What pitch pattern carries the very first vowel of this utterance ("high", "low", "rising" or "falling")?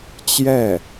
falling